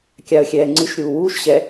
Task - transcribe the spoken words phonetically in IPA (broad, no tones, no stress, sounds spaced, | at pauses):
kʲ a ə̯ xʲ ɛː ŋ͡ǀ ɨ ʃ ɾʲ uː w uː ʃ ɕ ɛ